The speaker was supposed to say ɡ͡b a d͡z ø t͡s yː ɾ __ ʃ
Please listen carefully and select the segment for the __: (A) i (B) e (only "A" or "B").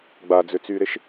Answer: B